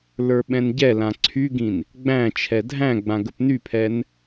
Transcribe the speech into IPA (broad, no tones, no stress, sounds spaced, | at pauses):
l ə˞ ɓ ɛ̃ n ɟ ɛ l ã ǀʰ y ɡ ĩ n | ɡ͡b æ̃ t͡ʃʰ ɛ dʱ æ̃ ɡ͡b ã ɡ ə p n y pʰ ɛ n